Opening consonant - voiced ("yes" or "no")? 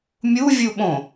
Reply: yes